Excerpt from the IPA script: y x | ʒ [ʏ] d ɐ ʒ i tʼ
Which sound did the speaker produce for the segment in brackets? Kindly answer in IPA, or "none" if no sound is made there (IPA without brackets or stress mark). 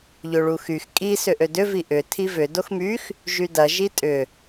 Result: y